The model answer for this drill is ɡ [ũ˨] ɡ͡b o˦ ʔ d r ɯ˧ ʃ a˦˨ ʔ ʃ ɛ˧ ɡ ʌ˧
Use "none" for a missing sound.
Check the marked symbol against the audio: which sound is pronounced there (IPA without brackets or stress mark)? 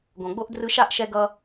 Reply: õ˨